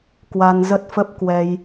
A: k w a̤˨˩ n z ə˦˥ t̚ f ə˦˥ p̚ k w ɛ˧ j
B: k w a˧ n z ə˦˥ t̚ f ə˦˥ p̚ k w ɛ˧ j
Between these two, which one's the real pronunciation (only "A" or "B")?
B